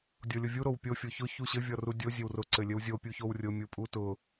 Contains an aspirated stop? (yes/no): no